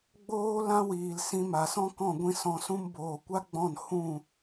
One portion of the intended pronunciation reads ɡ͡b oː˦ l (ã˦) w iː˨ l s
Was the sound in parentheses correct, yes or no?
yes